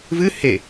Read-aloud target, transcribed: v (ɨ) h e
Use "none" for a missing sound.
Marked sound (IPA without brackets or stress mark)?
ɨ